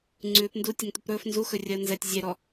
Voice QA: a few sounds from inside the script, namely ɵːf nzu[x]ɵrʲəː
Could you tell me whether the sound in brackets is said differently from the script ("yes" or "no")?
no